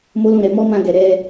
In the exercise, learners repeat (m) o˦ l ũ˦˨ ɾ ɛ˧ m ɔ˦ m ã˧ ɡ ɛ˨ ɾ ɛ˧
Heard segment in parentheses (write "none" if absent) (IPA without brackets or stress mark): m